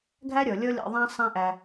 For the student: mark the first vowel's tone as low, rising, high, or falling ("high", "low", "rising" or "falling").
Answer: high